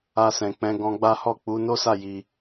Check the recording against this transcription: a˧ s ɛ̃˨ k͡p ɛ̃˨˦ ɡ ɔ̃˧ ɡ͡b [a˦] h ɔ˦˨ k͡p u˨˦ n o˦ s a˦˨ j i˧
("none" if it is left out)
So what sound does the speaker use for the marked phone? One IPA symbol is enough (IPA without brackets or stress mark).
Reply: a˦